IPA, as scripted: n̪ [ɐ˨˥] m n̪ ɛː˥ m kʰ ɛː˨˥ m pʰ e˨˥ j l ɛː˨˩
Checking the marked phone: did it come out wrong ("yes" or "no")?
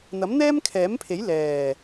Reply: no